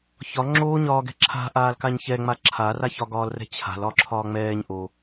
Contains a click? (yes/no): yes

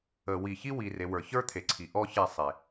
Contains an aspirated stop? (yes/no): yes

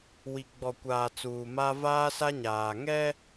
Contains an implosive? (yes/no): no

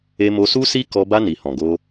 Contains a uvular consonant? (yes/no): no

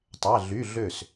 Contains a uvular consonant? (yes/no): no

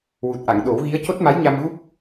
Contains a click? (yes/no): no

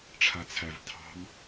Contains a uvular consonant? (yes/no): no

